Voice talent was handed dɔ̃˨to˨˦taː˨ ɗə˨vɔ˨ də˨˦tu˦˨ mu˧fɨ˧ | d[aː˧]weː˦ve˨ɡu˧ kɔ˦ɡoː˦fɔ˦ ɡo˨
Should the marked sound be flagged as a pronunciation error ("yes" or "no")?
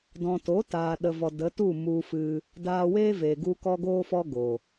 no